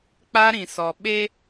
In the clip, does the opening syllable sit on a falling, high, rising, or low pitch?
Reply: high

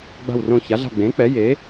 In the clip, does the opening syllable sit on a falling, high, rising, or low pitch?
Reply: falling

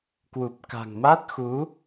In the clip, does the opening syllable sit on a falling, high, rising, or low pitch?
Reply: low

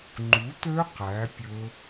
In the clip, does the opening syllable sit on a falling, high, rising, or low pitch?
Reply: rising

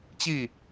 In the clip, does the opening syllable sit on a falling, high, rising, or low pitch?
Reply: falling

